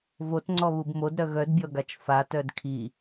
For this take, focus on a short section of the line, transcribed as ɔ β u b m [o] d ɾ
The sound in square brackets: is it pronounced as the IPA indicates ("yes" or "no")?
yes